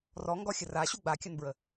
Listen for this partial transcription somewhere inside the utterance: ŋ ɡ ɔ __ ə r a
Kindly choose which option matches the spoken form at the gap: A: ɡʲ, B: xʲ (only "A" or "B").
B